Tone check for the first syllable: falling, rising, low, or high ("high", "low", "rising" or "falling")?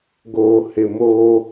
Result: low